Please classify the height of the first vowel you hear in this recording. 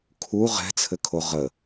high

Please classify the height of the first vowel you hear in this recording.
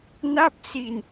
low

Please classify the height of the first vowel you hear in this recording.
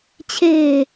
mid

